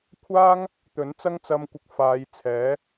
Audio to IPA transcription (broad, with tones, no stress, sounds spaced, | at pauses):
kʷʰ aː˥ ŋ | t̪ ɵ˨˥ n t͡s ɐ˥ ŋ t͡s ɐ˧ m kʷ ɪ˨˥ k̚ f aː˨˧ j t͡sʰ ɛː˨˥